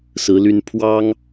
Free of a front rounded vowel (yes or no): no